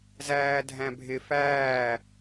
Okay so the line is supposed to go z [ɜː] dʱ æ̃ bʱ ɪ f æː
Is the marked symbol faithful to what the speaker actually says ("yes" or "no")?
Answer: no